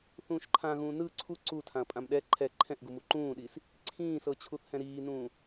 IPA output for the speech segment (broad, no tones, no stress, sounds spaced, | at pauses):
θ ũː ʃ ǃʰ ã ɣ ũː n ɯ ǀʰ u ǀ u tʰ ã ɐ̯ pʼ ã m ɗ ɛ ǃʰ ɛ ǃʰ ɛ̃ ʔ ɡ u m u ǃ ũː ɗ i s | ǀʰ ĩː s ɤ t͡ɕʰ u θ h ɛ̃ ɾ iː n ũː